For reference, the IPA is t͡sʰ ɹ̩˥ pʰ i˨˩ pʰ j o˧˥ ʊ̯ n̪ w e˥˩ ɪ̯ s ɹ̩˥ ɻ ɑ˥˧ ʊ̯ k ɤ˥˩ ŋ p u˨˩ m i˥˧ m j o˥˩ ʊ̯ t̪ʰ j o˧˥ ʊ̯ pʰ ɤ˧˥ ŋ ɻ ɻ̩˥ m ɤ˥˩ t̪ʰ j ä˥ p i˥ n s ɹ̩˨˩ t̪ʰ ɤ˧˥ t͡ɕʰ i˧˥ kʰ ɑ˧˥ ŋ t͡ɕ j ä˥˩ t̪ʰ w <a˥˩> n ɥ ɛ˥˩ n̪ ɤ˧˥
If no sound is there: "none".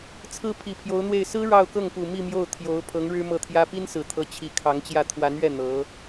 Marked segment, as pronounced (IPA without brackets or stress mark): a˧˥